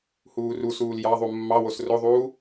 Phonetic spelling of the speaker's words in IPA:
h uː r u s uː l j ɑ ðˤ u mː ɑ w o s r o ðˤ uː

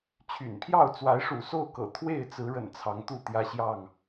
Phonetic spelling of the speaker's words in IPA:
t͡ɕʰ y̰˨˩ n pʰ j ɑ˥˨ ʊ̯ t͡s w a˨˦ ɪ̯ ʂ ṵ˨˩ s o˥˨ ʊ̯ k ɤ̰˨˩ t̪ʰ w e˥˨ ɪ̯ t͡s ɹ̩˨˦ ɻ ə̰˨˩ n t͡sʰ ɑ˨˦ ŋ t̪ u˥˨ t̪ j ä˦ ɕ j ɑ˥˨ ŋ

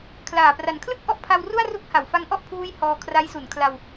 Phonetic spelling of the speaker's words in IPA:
kʰ l aː˨˩ p r a˨˩ n kʰ l ɯ˥˩ k̚ ʔ ɔ˦˥ ʔ pʰ a˧ w r u˥˩ a̯ r u˦˥ k̚ h a˩˦ w f a˦˥ ŋ ʔ ɔ˥˩ ʔ pʰ uː˦˥ j h ɔː˧ kʰ r a˦˥ j s u˩˦ n kʰ l a˧ w

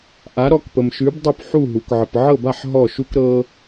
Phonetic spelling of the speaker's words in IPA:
ʔ a˩˥ ɾ ɔ˩˥ k p ə˩ m ʃ ʉ˩˥ b dˤ œ˥˩ p ħ u˥˩ ɦ u˩ k ʕ ə˩ p ʕ ɤ˥˩ b a˥˩ ħ ɦ ɔ˥˩ ʃ u˥ k ɾ ɤ˥

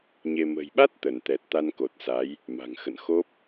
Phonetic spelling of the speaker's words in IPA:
ɲ e˧ m ə̤˨˩ j ɓ a˦˥ t̚ t̪ ə˧˩ n t̪ ɛ˨˩ t̚ t̪ a˧ n k o˨˩ t̚ s a˨˦ j | m a̤˨˩ ŋ x ə̰˧˨ n x o˦˥ p̚

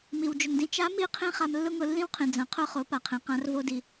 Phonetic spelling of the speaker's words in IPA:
m i˩ w d͡ʒ ʊ˩ ŋ d ĩ˧ t͡ʃ a˧˥ m i˧˥ qʰ ĩ˧ χ a˧ m lː ʊ˥ ŋ ʊ˧ lː ĩ˥ w qʰ ĩ˩ d͡z ɐ̃˩˧ qʰ ʊ˧ χ o˩˧ p a˩ qʰ ĩ˩ q ã˧˥ r v o˧ d i˩

